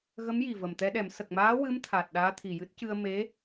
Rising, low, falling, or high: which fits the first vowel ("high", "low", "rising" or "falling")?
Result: rising